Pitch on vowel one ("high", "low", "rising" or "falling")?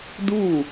falling